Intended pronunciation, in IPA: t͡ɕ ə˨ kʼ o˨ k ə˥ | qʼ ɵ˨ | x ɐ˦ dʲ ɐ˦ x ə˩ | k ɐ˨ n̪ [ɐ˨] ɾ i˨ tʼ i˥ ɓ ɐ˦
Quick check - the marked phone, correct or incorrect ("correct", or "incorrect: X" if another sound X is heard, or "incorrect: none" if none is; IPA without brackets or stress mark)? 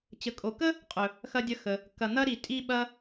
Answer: incorrect: ɐ˥